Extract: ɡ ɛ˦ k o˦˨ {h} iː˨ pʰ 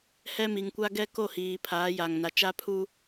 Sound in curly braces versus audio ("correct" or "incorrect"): correct